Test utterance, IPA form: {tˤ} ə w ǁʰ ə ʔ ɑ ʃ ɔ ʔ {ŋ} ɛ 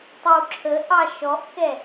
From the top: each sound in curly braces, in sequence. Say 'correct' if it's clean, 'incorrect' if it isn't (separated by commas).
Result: correct, incorrect